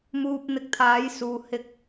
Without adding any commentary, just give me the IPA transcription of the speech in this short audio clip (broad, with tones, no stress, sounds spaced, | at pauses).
m uː˧ p̚ n̪ ɪ˧ k̚ t̪ʰ aː˨˥ j s uː˨ h ɪ˧ k̚